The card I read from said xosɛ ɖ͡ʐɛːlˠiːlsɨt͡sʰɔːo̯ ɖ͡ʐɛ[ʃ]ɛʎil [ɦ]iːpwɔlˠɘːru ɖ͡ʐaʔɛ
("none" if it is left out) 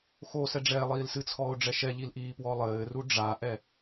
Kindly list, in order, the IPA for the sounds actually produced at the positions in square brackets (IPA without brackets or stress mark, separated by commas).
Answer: ʃ, ʔ